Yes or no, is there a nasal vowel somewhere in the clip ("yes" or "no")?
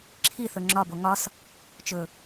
no